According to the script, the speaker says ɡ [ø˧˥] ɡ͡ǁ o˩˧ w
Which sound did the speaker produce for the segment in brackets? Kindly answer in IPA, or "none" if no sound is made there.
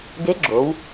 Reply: e˧˥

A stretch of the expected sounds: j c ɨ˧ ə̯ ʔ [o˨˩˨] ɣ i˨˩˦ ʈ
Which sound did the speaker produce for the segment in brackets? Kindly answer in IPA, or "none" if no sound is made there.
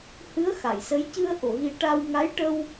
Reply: o˨˩˨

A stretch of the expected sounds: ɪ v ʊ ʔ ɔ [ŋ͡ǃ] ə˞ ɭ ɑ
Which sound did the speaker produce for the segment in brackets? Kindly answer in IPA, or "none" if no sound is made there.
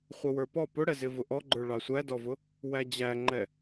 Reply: ɡ͡ǃ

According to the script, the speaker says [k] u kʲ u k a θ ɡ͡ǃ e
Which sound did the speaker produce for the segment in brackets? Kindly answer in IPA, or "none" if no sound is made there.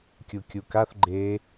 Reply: kʲ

